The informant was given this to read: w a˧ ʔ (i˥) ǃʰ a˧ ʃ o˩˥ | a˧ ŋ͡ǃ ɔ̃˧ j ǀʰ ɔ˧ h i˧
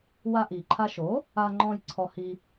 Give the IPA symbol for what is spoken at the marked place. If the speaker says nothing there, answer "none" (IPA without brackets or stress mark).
i˩